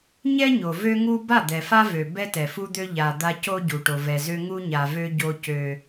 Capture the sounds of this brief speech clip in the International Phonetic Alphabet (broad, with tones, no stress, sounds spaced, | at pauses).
ɲ ɛ˦ ɲ o˨ v ø˦ ŋ u˦ b a˦˨ d̪ ɛ˨ f a˦ v ø˨ b ɛ˦ t ɛ˨ f u˦ d̪ ø˦ ʎ a˨ d̪ a˦ c o˦ ɟ u˨ ʈ o˨ v ɛ˨ z ø˦ ŋ u˦ ɲ a˨ v ø˦ ɟ o˦ c ø˦